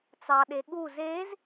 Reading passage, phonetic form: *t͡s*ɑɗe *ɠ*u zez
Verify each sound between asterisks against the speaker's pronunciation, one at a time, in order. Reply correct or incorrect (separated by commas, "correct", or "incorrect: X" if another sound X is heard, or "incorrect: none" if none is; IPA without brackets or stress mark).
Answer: correct, correct